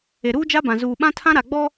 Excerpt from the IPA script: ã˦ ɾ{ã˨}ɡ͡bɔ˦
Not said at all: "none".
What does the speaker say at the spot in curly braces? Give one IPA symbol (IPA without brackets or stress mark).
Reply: a˨